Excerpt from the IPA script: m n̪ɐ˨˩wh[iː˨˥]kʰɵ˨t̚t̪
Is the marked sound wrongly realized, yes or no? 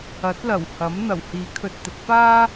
no